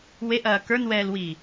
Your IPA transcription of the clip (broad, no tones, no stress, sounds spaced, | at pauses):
w e ʔ ɐː k ə˞ n w ɛː l w i